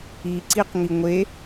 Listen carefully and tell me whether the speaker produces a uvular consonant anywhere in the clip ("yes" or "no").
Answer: yes